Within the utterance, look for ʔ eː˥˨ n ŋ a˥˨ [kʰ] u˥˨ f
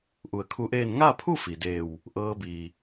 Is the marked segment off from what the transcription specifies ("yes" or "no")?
yes